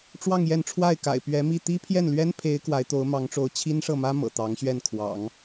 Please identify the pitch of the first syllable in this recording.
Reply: falling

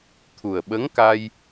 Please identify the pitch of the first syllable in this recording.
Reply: low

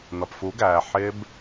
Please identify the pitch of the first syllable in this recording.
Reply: low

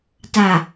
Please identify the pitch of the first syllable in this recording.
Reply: low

